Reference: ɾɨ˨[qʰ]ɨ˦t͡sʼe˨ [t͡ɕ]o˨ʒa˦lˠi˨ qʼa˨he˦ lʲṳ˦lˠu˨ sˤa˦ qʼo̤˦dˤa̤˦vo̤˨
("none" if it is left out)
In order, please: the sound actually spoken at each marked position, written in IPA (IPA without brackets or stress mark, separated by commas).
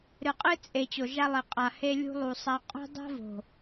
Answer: qʼ, t͡ɕ